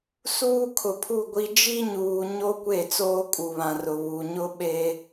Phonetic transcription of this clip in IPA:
s uː˦ kʰ ʊ˨ pʰ u˦˨ ɡʷ i˦ d͡ʒ i˦ ɲ uː˨ ɲ o˦ kʷ e˦˨ t͡s oː˦ kʼ u˨ β ã˨ r ʊ˨ β u˨ ɲ ʊ˦ ɓ e˦

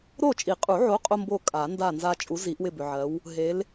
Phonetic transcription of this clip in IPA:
ɾ o˦˨ t͡ʃʼ i˨˩˦ qʼ u˨˩˦ ʕ o˨˥ qʼ o˦ m b o˦˨ kʼ a˨˩˦ n d a˦˨ n z a˦ t͡ʃʼ u˨˥ z i˨˩˦ ʔ w ɪ˦˨ b ʏ˨ ʕ ɜ˨˥ w | ɦ e˨˥ l

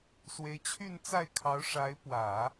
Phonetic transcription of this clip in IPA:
s w e˧˥ ɪ̯ t͡ɕʰ y˥˧ n t͡s a˥˩ ɪ̯ kʰ ɑ˧˥ ʊ̯ ʂ a˧˥ ɪ̯ p w ä˨˩˦

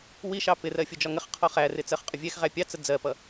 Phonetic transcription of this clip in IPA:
w i ʃ ɑ p ɪ r ɜ fʲ ʊ d͡ʒ ɒ ŋ ə χ qʰ ɔ χ æ r ɪ t͡s ɜ χ qʼ ʊ vʲ ɛ x ʁ æ pʲ ɑ t͡s ə d͡z ɜ p ʌ

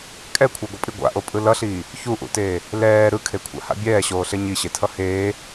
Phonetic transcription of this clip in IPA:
kʼ ɛ kʷʰ ʌ ɡʷ ʌ pʼ i ɡʷ a̰ ʔ o pʼ ɯ l ʌ ɬ iː | ç u ʔ ṵ t eː | l ɛː ɾ ɯ kʰ e kʷʰ a̰ h a̰ bʲ ɛː ɕ oː ɬ e ɲ i ɕ e tʰ ʌ h eː

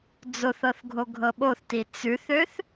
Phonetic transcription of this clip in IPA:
d͡z o θ ɤ θ ɡʱ o ɡʱ ɤ ɓ o θ t i t͡s ʉ θ ø θ

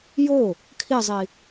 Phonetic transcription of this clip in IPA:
j o | kʰ i zˤ i

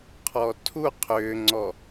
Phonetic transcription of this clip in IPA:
qʰ ɔ tʰ u qʰ ʏː ŋ͡ǀ ɔ

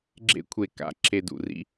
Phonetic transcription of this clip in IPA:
ɡ͡ǁ ḛ˦ kʷʰ e˧ k a̰˧ ǁʰ e˧ d ṵ˨ r ḭ˦

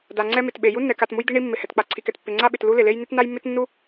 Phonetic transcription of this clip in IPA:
d a˩ ŋ͡ǀ ɛ˥ m ɪ˩ t ɓ e˩ j u˥ nː ɛ˩ k a˩ t m u˥ j d̪ i˥ ɳ i˥ mː ɪ˩ h ɛ˩ t k͡p a˩ ǀʰ i˩ k ɛ˩ t pː ɪ˩ ŋ͡ǀ a˥ ɓ ɪ˩ t l u˥ l ɪ˩ l e˥ j n ɪ˥ t n a˥ j mː ɪ˥ t nː u˥

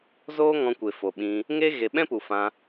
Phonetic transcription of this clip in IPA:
z oː˦ ŋ ɔ̃˧ kʷ e˨ f o˨ ɓ ĩ˧ | ŋ e˦ ɣ e˨ ɓ ɛ̃˦ p u˨ f ã˧

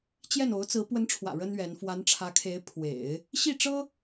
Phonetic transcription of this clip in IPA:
t͡ɕ j ɛ˥˩ n o˧˥ ʊ̯ t͡s ɹ̩˧˥ p w ə˧˥ n ʈ͡ʂʰ w ä̰˨˩ ɻ ə˥ n ɥ ɛ˧˥ n f w a˧˥ n ʈ͡ʂʰ ä˧˥ kʰ e˧˥ ɪ̯ pʰ w ḛ˨˩˦ ɪ̯ | ɕ i˥˩ ʈ͡ʂ ɤ˥

